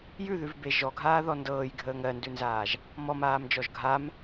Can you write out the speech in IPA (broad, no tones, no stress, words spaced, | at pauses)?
jʉðʉvbe ʒɔɡʱaːðɔ ndɤːjɡʱəːŋ ɜndʉnzaːʒ | mɔmaːmd͡ʒɔʒ ɡʱam